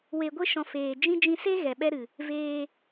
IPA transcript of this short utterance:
w e˨ ɡʷ e˦ ʃ ɔ̃˨ f eː˨ d͡ʒ ĩ˦ d͡ʒ ĩ˧ s e˦ ɣ ɛ˨ ɓ ɛ˦ ɾ ɨ˨ | v eː˧

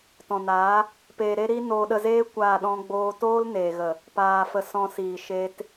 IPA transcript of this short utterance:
t ɔ̃˨ n aː˨˦ | p eː˧ ɾ e˦ ɾ iː˦ n oː˧ ɗ ə˧ z eː˦ kʷ aː˦˨ ɗ ɔ̃˦ ɡ͡b oː˦ t oː˦ l n eː˨ ɣ ə˨ | p aː˧ f ə˧ s ɔ̃˧ s iː˨ ʃ eː˦ t

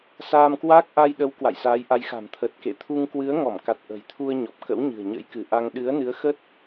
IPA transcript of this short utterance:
s aː˧ m k w aː˦˥ k̚ ʔ a˧ j ɗ ə˨˦ w k w a̰˧˨ j s aː˨˦ j ʔ a˨˦ j x a̤˨˩ m t̪ʰ ə˨˩ t̚ k ḛ˧˨ t̪ʰ u˧ ŋ k w ɨ˨˦ ə̯ ŋ ɔ˧˩ m k a˨˩ t̚ ʔ ə̤˨˩ j t̪ʰ u˧ ə̯ ɲ ɔ˨˩ p̚ k ə̰˧˥ w ɲ ɨ̤˨˩ ə̯ ɲ ə̰˧˥ j k ɨ˧˩ ʔ a˧ ŋ ɗ ɨ˨˦ ə̯ n ɨ˨˦ ə̯ x ə˦˥ t̚

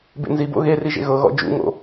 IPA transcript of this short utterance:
b ḛ n z i b o̰ ɣ e r i ʒ ḛ ɣ ɤ ɣ ɔ̰ d͡ʒ ṵ ŋ o̰

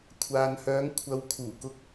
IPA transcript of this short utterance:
kʷʰ aː˨ n h œː˨˧ ŋ kʷʰ ɐ˨ w kʰ uː˨˩ k ʊ˨˥ k̚

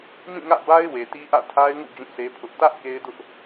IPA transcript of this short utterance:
m ĩ˦˨ ŋ ä̰˦˨ b a˦ ɪ̯ w e˨ t i˦ ʔ ä̰˦˨ tʰ a˦ ɪ̯ ŋ ṵ˦˨ d͡ʑ ũ˦˨ sʰ e˦ pʰ ʊ˦ ʔ t ä˦ ʔ k e˦ ɪ̯ d ʊ˦ ʔ

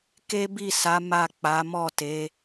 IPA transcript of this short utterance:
k e˦ b i˦˨ s a˨˦ m a˦˨ k͡p a˨˦ m ɔ˦˨ t e˨˦

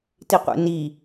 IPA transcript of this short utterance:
t i qʷ ḛ n i

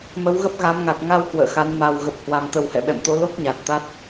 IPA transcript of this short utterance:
m ə˨˦ w ɣ ə˦˥ p̚ ɣ a˨˦ m ŋ a˨˩ t̚ ŋ a˧ w k w ə̰ː˧˨ x a˨˦ n m a˨˩ w ɣ ə˨˩ p̚ h w a˨˩ m t̪ ə˨˩ w h ɛ̰˧˨ ɓ ɛ̰˧˨ m t̪ o˨˦ l o˦˥ k̚ ɲ a˨˩ t̚ t̪ a˦˥ t̚

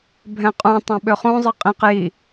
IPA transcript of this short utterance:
bʱ ɛ̃ qʼ ũ tˤ ɛ̃ ɓ ø χ ũ zˤ ɯ qʼ ĩ q j i

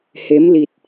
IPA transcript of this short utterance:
h e˨˦ m l i˨˩ t̚

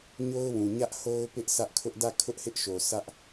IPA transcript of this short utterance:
ɲ o˦ ʊ̯ w ũ˨ ɲ ä˦ ʔ h o˦ ʊ̯ p ɪ˦ ʔ sʰ ä˦ ʔ kʰ ʊ˦ ʔ d ä˦˨ kʰ ʊ˦ ʔ h ɪ˦ ʔ ʃ o˨ sʰ ä˦ ʔ

